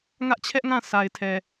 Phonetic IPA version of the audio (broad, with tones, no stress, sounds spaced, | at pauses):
ŋ ä˦ ʔ t͡ɕʰ ɛ˦ ʔ ŋ ã˦˨ s a˨ ɪ̯ tʰ ɛ˨